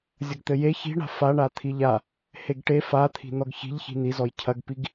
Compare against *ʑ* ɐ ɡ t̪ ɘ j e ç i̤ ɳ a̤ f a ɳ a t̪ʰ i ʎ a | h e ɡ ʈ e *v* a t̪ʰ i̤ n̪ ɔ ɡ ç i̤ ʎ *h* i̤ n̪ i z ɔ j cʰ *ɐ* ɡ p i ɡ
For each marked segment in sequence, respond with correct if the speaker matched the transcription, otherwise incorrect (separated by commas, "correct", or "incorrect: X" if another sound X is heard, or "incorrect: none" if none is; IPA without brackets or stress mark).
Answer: incorrect: zʲ, incorrect: f, incorrect: ç, correct